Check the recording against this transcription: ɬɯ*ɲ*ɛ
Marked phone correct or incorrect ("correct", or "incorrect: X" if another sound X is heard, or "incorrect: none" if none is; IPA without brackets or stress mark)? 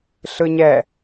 correct